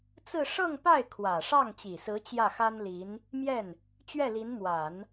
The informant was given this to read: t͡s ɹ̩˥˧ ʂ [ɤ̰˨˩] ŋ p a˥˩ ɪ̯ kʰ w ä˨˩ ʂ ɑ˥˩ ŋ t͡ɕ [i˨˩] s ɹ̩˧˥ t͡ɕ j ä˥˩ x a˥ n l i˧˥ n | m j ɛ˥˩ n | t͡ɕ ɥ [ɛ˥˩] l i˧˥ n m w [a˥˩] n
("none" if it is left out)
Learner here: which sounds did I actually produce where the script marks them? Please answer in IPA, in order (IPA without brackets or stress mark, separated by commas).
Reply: ɤ˥˧, i˨˩, ɛ˥˩, a˨˩˦